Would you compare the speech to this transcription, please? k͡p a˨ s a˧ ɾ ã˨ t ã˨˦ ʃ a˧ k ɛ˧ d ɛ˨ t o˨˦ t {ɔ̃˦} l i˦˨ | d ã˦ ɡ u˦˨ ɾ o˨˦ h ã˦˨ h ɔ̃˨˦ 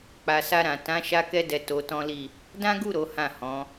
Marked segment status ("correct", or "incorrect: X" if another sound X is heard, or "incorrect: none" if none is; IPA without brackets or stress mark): correct